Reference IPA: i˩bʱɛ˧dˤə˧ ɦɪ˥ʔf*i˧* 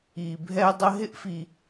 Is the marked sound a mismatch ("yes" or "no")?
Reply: no